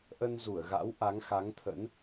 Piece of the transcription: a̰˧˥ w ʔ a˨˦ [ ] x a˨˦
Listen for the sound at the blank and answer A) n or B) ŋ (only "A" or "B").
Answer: B